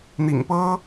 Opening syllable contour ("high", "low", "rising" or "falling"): low